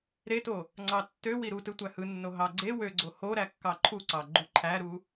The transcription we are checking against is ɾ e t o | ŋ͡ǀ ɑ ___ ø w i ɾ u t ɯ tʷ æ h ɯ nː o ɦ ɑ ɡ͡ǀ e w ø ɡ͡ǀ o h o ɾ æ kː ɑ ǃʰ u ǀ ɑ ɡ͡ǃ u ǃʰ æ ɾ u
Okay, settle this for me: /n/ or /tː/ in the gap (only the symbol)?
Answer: tː